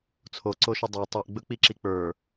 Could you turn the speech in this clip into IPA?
t͡sʰ o ǀ o ʃ ɵ dˤ ə˞ tˤ o ʔ ɡ͡b ɵ k͡p i ǁ i k͡p ə˞

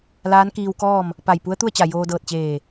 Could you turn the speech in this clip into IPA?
l aː˧˥ n k iː˧ w k ɔː˥˨ m | p a˧˩ j p u˧˥ ə̯ t̪ u˥˨ ə̯ t͡ɕ a˧˩ j oː˧ d ɤː˧˩ t̚ t͡ɕ eː˧˩

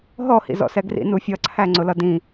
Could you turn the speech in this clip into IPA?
ɦ ɔ h ḭ z ɔ̰ s ɛ ɡ r ḭ n u fʲ ʌ ǀʰ æ ŋ͡ǀ ʊ l ʌ d ĩ

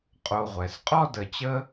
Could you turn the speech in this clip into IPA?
qʼ o˧ ʁʷ ɛ˨ s qʼ ɔ˦ d ə˨ t͡ɕ ə˦

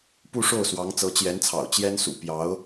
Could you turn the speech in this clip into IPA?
p u˥˧ ʂ o˥˩ ʊ̯ s w ɑ˧˥ ŋ t͡s ɤ˧˥ t͡ɕ j ɛ˧˥ n t͡sʰ ɑ̰˨˩ ʊ̯ t͡ɕ j ɛ˥ n s ṵ˨˩ p j ɑ˧˥ ʊ̯

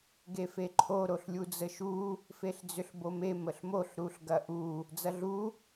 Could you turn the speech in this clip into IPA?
ɡ e f e ǃʰ o ɾ o ɬ lʲ u d͡z ə ʃ u | f e ɬ d͡z ʏ ɬ b o m e m ə ɬ m o ɬ ɾ u ɬ ɡ ɐ ʔ u | d͡z ɐ ɮ u

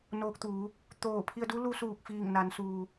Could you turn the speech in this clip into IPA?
n oː˧ k̚ t̪ uː˩˧ | t̪ oː˧˩ pʰ i˧ ə̯ d u˧˥ l u˧ s uː˧˩ k̚ f iː˧˩ ŋ n a˩˧ n s uː˩

